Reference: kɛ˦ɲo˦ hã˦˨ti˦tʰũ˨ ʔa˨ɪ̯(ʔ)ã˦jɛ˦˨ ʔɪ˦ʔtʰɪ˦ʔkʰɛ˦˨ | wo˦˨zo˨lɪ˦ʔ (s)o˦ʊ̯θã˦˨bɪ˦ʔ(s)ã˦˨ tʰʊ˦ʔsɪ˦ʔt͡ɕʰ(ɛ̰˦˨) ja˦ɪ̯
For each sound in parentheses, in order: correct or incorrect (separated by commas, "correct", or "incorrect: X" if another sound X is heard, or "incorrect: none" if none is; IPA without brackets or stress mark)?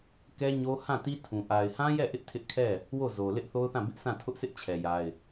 incorrect: h, incorrect: θ, correct, incorrect: ɛ˨